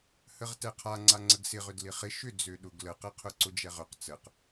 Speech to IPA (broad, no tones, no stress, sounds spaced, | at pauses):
h ə ʁ t ɛ qʰ a ŋ͡ǀ a ŋ͡ǀ ə ɡ s ɪ ʁ ʏ d l ɪ χ ɪ ʃ ʏ d͡z ø ɗ ʊ ɡ l ə q ɛ qʰ ʊ ǀ ʊ d͡ʒ ɛ ʁ ʏ q t͡s ə q